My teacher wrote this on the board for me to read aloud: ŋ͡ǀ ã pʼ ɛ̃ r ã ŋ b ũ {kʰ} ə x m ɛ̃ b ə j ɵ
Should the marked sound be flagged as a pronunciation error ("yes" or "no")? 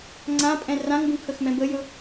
no